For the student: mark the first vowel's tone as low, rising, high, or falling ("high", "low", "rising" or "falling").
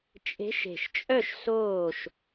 rising